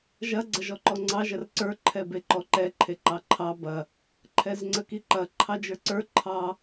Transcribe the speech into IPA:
ʒ ɐ ɡ͡ǀ ɐ ʒ ɔ ǃ ɔ ŋ͡ǀ ɑ ʒ ɐ r ǀ ə˞ ǃʰ ɛ b e ǃ ɔ ǃ ɛ ǃʰ e ǃ ɑ ǃʰ ɑ b ɐ | ǃʰ ɛ z ŋ͡ǀ ə k i ǃ ɐ ǃʰ ɑ d͡ʒ ə˞ ǀ ə˞ ǃʰ ɑ

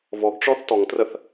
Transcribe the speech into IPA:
v ɔ ɡ ʈ͡ʂ ɔ θ t ɔ ŋ t r ə θ

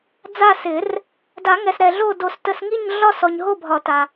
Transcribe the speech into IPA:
d͡z a˦˨ s ɪ˨˩˦ r | d a˨˩˦ ŋ ɛ˨ s ɾ ɛ˨ ɮ o˦˨ d o˨˩˦ s t ə˨ s ŋ i˦˨ ɲ ɮ ɒ˦˨ s ɔ˨ ɲ ɦ o˦˨ bʱ ɒ˨˩˦ t a˨

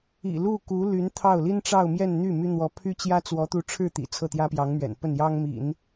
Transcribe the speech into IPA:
ḭ˨˩ l u˥˩ k u˧˥ l y˧˥ n t̪ʰ ɑ˥˩ ʊ̯ l i˥ n ʈ͡ʂ ɑ˥˧ ʊ̯ m j ɛ˥˧ n n̪ y˥˩ m y˥ n̪ w ɔ˧˥ pʰ y˥ t͡ɕ j ä˥ t͡s w ɔ˧˥ t̪ u˧˥ ʈ͡ʂʰ ɻ̩˥˩ t̪ ḭ˨˩ t͡sʰ ɤ˥˩ t̪ j ä˥ p j ɑ˧˥ ŋ m ɥ ɛ̰˨˩ n p ə˥˩ n j ɑ˥ ŋ m ḭ˨˩˦ n

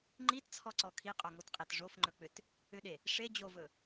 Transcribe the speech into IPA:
ŋ͡ǃ i t t͡sʰ ɔ ǀ ɔ kʰ i qʼ o ŋ o t qʼ e t ʐ o f ŋ͡ǃ ɵ k͡p ʏ t | ʏ ɗ e | ʂ e d͡ʑ o v ɵ

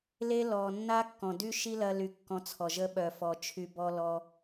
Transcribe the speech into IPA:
l e˦ l ɔ˧ nː a˦ kː ɔ̃˨ d y˦ ʃ i˦ l ɐ˧ l y˨ kː ɔ̃˧ t͡sʰ ɔ˨ ʒ ə˦ ɓ œ˨ f ɔ˨ t͡ʃʰ y˧ b ɔ˧ l ɔ˧

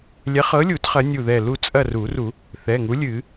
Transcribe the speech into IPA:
lʲ ɛ˨˥ χ ɤ˨˥ lʲ u˨˩˦ t χ ɐ˨˥ nʲ u˧˩ ð ɛ˧˩ l u˥˨ t͡sʼ ɐ˥˨ r u˨˩˦ r u˨˩˦ | θ ɛ˩˧˩ ŋ u˨˥ lʲ ɨ˨˩˦

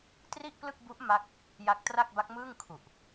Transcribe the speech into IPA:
t r i˥˩ ʔ p l ɯ˥˩ k̚ b u˦˥ ʔ m a˥˩ k̚ | j a˦˥ k̚ t r a˥˩ k̚ b a˦˥ k̚ m ɯː˥˩ ŋ kʰ u˨˩ ʔ

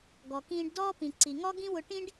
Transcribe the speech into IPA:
ɡ ɔ˩ k ĩː˧ ɖ d ɔː˥ p ĩ˩ ǀ i˩ ŋ ɔ˥ ɡ ĩ˥ w ʊ˧ ʈ ĩ˥ ɖ

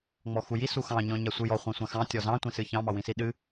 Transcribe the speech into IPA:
ŋ͡m ɔ x u j i s u x ɑ̃ ɲ ɔ̃ ɲ a sʷ ɨ j ɔ χʷ ã sʷ ã x ɑ̃ tʲ ɔ z ɑ̃ tʷ ĩ s ɨ ç ɑ̃ m ɑ w ĩ s i ɗ ɨ

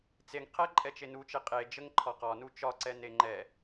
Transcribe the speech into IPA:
t͡s e ŋ qʰ ɛ ǃʼ ɛ t͡ʃ e n u t͡ʃ e qʼ e d͡ʒ ə ŋ ǃʰ ɒ q ɒ n u t͡ʃ ɒ ǀ ɛ n e ŋ͡ǃ ɛ

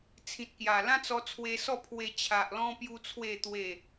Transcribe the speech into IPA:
t͡sʰ ĩ˨ t̚ k j a˨˩ l ã˦ t͡s ɔ˧ t͡sʰ w e˧ s ɔ˥˧ pʰ w e˧ t͡ɕʰ a˨ ʔ l ɔ̃˧ p j u˦ t͡sʰ w e˥˧ t̪ w e˥˧

